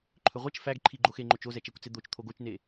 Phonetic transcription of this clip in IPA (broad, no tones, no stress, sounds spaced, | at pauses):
ǃʰ ɵ ʁʷ ɛ t͡ʃ f æ ɡ ǃʰ i ɡ͡ǃ o x e ŋ͡ǃ o t͡ʃ o z ɛ t͡ʃ ɛ kʷ t͡s e d̪ o t͡ʃ t̪ʰ o ɡ o t͡ʃ n e